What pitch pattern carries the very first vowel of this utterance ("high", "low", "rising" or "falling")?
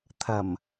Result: low